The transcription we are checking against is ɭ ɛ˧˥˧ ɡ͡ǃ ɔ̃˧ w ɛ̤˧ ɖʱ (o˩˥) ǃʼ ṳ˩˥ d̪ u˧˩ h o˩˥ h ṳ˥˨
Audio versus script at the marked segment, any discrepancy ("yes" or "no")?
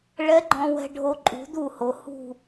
yes